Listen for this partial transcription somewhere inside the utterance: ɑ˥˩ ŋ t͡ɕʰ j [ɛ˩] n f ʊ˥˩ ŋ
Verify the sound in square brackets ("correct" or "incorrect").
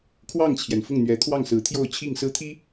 correct